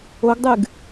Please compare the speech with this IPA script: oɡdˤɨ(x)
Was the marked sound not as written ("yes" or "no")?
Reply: yes